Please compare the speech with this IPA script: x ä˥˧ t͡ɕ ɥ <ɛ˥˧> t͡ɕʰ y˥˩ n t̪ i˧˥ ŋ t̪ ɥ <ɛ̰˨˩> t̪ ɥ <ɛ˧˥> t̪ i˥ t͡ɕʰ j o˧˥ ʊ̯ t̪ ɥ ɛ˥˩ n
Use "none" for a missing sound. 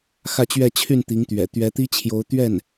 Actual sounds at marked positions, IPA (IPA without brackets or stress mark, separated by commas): ɛ˥˧, ɛ̰˨˩, ɛ˧˥